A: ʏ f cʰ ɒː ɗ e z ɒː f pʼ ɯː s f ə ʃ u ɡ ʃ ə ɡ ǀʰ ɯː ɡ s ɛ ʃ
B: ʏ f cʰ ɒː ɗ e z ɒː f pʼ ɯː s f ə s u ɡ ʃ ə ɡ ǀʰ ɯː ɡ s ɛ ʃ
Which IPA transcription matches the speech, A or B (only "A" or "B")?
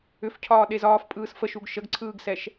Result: A